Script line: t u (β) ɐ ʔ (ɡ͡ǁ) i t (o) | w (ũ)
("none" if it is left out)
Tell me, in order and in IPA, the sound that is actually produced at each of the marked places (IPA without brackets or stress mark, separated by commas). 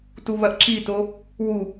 β, ǁ, o, u